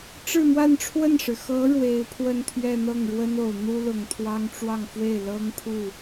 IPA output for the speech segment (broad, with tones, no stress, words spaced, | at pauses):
ʈ͡ʂɻ̩˥˧mwa˥˧nʈ͡ʂʰwə˥˩nʂɻ̩˩ xɤ˧˥ ɻwe˧˥ɪ̯pʰwə˥˧nt̪ʰɥɛ˥˧ n̪ɤ˥˩ŋɻwə˥no˨˩ʊ̯ n̪u˥lʊ˨˩ŋt̪ʰwɑ˥ŋ ʈ͡ʂwɑ˥˧ŋfwe˥˩ɪ̯ lɤ˥ŋpʰu˥˩